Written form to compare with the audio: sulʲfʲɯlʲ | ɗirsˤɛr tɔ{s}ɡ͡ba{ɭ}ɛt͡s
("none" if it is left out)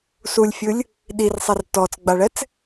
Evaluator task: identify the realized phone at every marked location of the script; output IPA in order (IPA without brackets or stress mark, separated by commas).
t͡s, ɭ